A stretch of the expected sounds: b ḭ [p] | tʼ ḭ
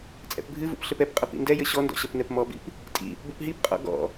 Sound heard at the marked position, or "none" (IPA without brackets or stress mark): p